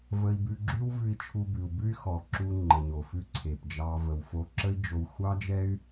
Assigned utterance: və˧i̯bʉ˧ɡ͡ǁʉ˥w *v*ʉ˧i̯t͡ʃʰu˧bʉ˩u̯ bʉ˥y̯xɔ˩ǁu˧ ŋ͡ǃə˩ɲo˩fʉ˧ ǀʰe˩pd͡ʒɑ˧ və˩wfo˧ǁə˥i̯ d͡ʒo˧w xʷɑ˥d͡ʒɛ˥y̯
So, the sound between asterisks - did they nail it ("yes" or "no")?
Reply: yes